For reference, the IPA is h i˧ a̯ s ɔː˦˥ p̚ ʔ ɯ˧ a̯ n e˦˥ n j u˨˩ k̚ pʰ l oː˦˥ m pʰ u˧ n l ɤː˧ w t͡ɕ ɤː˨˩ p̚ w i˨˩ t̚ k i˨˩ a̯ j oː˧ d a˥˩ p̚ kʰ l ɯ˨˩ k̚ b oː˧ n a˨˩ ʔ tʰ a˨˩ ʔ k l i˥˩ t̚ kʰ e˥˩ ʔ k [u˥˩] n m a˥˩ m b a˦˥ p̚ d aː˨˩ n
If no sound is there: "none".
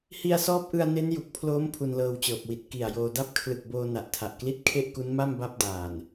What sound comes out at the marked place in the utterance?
u˦˥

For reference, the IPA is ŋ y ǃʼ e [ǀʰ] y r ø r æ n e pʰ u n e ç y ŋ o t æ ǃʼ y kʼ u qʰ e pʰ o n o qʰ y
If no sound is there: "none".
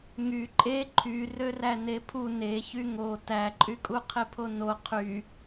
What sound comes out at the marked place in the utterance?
ǃʰ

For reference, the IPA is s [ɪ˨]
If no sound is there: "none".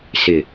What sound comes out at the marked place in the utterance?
ɪ˨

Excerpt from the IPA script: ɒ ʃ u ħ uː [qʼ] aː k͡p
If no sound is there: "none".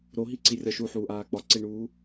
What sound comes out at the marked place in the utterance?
ʔ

